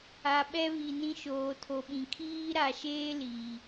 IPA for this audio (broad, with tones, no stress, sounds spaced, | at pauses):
a˨ ɓ ɛ˦ β i˨ n ĩ˦ ʃ oː˨ tʰ o˨ ɓ ĩ˨ kʰ iː˦ ɾ a˨ ʃ eː˦ l iː˨